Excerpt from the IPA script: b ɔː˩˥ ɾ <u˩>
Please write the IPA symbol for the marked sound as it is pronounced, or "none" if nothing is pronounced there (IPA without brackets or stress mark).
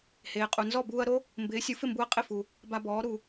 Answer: u˩